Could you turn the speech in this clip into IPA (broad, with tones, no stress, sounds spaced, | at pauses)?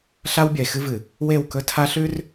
ɬ a˦ w bʲ ɐ˨ e̯ x ɨ˦ v ɨ˨ | w e˦˨ w k ɵ˦ tʰ a˦ ɬ ʉ˦ r